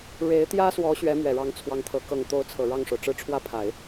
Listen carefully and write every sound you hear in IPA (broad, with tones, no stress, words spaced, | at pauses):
ɻe˧˥ɪ̯t̪jä˥swɔ˧˥ ɕɥɛ˧˥mɥɛ˨˩ɻɑ˧˥ŋ t͡sʰwɑ˧˥ŋt̪ʰɤ˧˥ kɤ˨˩ŋ t̪o˧˥ʊ̯t͡sʰɤ˨˩ ɻɑ˥˩ŋʂo˩ʊ̯ʈ͡ʂɻ̩˥˧ ʈ͡ʂʰwä˥˩pʰa˨˩˦ɪ̯